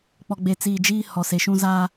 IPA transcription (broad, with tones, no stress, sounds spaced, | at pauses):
k͡p ɔ˨ ɡ͡b e˨ t͡s iː˨ d͡ʒ iː˦ h ɔ˨ s e˨ ʃ ũ˦ z a˦